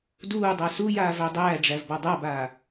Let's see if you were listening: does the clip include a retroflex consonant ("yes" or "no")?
yes